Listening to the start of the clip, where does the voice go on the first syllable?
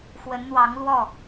rising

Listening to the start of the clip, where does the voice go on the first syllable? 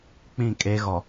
falling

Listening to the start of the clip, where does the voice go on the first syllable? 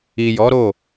low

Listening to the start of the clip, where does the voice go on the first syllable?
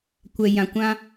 low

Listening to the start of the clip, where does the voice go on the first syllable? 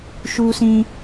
high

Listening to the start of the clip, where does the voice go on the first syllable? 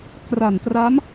low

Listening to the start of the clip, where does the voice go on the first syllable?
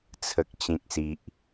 low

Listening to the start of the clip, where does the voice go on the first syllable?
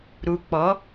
low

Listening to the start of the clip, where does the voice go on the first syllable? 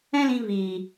high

